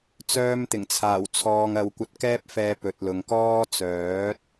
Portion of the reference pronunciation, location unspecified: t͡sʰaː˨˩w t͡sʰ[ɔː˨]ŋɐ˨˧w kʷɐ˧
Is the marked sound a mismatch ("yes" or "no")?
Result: no